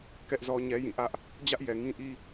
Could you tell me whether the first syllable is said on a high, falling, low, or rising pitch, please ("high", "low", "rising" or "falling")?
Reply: high